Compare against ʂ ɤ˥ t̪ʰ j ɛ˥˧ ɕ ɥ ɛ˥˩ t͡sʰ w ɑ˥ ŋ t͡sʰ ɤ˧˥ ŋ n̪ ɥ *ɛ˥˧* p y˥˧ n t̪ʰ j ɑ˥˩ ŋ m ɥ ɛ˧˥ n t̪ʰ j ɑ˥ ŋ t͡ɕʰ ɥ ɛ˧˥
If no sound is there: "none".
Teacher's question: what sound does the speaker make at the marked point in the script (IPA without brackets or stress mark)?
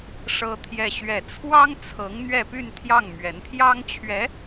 ɛ˥˧